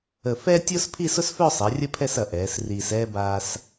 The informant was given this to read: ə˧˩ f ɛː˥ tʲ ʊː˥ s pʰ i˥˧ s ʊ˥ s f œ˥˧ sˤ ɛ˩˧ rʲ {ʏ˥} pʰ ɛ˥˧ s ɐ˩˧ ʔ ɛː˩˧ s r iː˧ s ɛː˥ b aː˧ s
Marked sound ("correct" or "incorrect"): incorrect